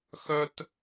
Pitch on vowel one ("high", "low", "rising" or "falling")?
high